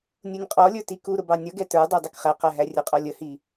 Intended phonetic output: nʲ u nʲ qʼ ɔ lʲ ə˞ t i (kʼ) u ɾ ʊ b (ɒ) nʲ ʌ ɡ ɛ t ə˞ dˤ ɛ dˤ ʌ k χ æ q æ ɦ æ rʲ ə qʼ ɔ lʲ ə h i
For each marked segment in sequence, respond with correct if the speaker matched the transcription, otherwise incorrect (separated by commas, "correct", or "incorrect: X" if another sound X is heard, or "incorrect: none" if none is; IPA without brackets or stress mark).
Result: incorrect: k, incorrect: ɑ